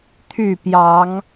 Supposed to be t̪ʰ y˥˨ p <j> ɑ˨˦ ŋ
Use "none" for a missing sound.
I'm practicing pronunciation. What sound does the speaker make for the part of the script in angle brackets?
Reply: j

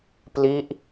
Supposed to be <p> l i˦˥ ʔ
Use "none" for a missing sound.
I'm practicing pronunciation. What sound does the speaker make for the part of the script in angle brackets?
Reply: p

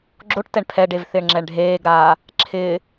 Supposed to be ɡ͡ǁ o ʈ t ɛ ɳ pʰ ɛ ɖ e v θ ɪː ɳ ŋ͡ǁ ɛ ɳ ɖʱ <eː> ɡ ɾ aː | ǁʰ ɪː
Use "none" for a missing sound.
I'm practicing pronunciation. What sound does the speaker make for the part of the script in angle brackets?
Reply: eː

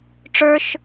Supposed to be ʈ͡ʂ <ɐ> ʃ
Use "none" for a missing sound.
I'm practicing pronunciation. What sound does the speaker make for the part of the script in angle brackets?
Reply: ə˞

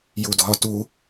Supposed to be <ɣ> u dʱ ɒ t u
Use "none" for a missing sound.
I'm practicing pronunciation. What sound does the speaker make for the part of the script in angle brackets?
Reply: j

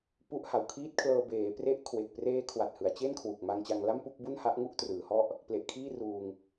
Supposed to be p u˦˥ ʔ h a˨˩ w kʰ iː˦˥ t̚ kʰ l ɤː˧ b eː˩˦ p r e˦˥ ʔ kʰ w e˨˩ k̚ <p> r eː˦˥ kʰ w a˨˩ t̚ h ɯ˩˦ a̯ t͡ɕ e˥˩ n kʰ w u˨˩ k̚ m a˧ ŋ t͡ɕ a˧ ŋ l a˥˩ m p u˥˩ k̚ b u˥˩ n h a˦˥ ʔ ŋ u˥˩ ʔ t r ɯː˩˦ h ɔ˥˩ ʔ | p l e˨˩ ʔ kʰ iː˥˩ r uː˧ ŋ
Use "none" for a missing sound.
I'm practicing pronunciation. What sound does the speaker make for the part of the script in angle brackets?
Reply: p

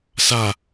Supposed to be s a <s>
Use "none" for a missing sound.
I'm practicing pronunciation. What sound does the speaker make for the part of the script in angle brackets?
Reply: none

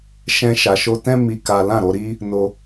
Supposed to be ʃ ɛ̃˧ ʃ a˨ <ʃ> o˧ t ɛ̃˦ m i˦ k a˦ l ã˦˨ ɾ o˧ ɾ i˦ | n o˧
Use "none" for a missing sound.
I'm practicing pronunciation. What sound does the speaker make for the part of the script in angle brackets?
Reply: ʃ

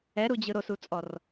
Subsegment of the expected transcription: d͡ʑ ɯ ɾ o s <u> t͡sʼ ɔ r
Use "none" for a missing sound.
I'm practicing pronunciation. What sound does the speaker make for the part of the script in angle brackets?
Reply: u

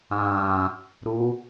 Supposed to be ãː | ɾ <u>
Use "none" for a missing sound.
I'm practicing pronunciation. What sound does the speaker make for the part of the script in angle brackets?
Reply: u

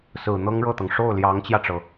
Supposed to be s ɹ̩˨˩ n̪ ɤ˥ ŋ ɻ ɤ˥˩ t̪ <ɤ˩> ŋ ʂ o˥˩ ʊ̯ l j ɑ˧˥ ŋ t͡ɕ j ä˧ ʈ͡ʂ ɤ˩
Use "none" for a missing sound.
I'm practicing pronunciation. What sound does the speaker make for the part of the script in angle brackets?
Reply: ɤ˩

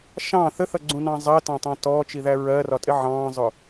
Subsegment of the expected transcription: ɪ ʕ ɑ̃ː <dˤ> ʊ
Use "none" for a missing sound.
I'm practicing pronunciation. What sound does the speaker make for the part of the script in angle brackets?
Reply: zˤ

